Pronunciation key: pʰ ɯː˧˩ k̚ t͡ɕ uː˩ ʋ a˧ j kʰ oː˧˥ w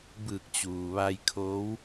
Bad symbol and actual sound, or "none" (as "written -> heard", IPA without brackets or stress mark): pʰ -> b